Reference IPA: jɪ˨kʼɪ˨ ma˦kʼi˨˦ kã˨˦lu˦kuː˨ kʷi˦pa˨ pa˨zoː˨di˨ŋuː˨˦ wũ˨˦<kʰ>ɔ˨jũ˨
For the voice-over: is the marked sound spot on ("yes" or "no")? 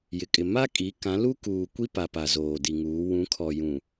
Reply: yes